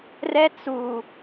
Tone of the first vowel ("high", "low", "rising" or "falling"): high